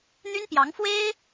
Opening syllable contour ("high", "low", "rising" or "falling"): high